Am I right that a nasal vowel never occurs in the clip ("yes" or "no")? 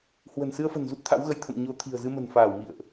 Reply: yes